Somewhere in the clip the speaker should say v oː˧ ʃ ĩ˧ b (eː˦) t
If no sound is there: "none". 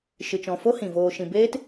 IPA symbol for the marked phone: eː˦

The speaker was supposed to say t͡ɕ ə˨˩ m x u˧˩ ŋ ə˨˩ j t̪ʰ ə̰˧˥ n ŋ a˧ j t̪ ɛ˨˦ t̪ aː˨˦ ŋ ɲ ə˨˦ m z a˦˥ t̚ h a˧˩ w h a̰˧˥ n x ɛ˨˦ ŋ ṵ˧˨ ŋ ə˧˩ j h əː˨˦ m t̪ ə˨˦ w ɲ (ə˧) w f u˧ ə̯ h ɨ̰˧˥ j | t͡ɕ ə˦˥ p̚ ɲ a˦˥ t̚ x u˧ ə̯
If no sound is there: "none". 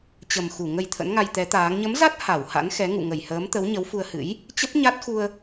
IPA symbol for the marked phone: ə˨˦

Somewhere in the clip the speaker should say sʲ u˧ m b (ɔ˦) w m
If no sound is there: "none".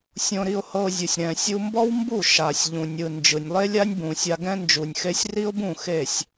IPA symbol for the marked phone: ɔ˦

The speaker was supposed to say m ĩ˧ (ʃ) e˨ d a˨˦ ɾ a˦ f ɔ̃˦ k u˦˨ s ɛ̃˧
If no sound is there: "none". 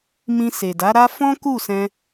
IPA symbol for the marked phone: s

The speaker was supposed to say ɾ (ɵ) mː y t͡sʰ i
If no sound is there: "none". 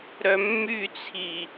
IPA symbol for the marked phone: œ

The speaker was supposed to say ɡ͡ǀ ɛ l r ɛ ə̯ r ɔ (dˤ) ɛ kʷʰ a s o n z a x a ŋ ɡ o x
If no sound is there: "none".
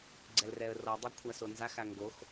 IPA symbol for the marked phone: dˤ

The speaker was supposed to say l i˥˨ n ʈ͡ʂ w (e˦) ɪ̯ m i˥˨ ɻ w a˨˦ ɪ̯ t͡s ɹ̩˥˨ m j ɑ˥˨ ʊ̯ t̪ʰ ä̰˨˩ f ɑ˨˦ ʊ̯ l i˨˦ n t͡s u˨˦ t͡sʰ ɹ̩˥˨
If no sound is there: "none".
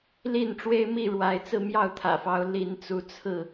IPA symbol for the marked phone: e˦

